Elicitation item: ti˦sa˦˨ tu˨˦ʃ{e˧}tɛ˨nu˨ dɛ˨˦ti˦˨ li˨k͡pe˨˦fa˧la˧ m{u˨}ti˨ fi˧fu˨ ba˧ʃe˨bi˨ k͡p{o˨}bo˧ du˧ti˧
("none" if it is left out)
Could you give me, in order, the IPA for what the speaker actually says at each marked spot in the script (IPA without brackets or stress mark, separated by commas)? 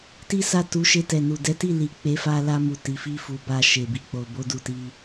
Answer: e˧, u˨, o˨